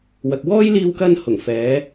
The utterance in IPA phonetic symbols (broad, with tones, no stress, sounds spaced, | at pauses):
w ɐ˨ k̚ w ɔː˥ j l iː˧ w k ɐ˧ n h ʊ˨˩ ŋ f ɛː˨˧